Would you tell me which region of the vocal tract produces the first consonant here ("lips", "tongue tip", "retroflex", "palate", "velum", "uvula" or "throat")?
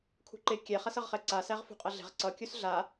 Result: velum